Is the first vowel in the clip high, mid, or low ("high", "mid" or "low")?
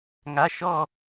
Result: low